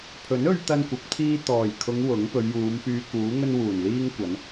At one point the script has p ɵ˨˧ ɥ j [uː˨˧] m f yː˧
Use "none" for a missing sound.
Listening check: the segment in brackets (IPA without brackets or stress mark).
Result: uː˨˧